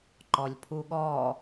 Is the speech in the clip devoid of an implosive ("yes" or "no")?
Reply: no